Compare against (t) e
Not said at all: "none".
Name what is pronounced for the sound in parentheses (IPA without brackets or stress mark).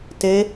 t